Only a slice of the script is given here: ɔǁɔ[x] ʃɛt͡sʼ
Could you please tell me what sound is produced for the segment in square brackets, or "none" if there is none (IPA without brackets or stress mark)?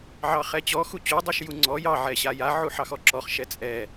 χ